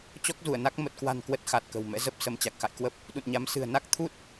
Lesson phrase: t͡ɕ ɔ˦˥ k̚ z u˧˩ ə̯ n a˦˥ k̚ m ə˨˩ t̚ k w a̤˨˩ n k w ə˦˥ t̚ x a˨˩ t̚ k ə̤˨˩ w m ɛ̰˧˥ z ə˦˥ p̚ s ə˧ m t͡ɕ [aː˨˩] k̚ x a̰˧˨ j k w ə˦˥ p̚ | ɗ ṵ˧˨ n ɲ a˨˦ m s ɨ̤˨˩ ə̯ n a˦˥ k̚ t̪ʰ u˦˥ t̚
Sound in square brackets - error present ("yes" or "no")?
yes